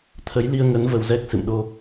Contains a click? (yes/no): no